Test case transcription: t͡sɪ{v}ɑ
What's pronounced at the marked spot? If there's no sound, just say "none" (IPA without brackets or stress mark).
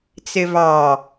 v